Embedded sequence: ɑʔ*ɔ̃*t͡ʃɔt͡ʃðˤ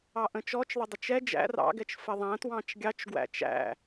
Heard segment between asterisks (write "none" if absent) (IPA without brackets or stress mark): ə̃